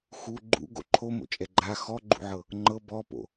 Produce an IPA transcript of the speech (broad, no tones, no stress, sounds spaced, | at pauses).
x u ɡ͡ǃ ṵ ɡ o̰ ǃʰ o m o̰ t͡ʃʼ ɛ ɡ͡ǃ a x ɔ ɡ͡ǃ ṵ ʕ ɤ | ŋ͡ǃ ɤ b ɔ p o̰